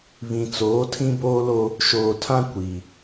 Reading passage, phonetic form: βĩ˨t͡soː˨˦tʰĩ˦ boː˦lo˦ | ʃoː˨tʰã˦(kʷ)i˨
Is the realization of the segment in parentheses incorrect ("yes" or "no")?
no